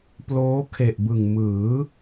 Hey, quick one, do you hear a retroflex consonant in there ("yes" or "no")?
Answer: no